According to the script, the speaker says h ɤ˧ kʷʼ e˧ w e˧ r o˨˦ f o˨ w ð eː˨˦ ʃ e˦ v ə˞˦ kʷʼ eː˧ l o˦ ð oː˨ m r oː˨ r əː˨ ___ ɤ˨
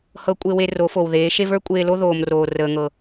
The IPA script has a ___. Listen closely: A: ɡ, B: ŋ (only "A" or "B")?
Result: B